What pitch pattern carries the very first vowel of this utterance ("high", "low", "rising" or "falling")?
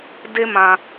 high